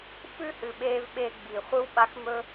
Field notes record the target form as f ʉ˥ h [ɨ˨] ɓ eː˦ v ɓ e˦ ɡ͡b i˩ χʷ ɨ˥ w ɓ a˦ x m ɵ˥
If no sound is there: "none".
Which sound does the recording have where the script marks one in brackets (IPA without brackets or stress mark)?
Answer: ɨ˨